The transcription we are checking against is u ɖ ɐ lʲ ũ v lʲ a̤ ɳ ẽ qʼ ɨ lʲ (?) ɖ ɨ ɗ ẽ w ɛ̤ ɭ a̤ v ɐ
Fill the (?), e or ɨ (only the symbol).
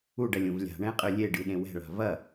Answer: e